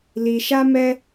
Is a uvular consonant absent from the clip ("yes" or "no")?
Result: yes